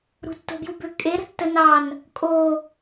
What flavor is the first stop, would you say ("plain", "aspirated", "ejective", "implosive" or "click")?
plain